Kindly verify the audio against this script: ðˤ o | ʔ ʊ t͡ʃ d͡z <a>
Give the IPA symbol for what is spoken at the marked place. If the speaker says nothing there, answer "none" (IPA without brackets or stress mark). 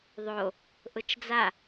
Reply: a